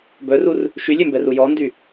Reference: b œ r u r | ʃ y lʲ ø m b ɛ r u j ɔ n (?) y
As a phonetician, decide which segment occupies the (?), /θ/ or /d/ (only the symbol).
d